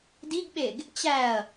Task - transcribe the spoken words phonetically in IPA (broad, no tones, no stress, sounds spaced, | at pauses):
d i ɡ ɓ e ɡ | t͡ɕ æ ɐ̯